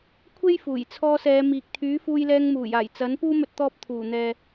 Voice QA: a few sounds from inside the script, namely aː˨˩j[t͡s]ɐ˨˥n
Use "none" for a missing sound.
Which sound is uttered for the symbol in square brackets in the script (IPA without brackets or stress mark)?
t͡s